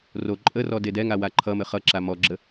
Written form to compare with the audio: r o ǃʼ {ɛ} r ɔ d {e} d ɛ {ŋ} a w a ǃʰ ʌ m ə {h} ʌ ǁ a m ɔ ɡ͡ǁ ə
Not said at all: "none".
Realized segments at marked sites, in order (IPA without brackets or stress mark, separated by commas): ə, e, ŋ, χ